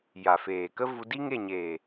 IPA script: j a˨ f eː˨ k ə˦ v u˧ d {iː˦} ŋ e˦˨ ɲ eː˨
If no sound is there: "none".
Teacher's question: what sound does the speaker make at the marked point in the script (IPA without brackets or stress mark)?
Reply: i˦